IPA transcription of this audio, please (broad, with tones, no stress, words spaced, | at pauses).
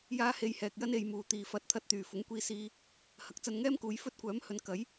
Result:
jaː˥ he˧jhɛː˨k̚jɐ˥n e˨jmuː˨˩ t̪iː˨˩fɐ˨t̚ t̪ʰɐ˧t̚t̪yː˨˩ fʊ˨˥ŋkʷiː˧siː˧ | hɐ˨˥k̚t͡sɐ˧nŋɛː˥mkuː˨˧j fɵ˥t̚kʷœː˨˥mhɵ˨˧n kɐ˨˥j